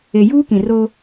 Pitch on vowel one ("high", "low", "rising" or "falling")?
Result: low